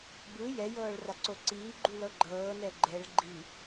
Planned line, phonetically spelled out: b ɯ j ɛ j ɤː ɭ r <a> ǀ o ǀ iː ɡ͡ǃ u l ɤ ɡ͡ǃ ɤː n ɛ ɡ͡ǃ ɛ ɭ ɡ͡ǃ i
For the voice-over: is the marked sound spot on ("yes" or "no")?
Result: yes